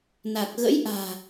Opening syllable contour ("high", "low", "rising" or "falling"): low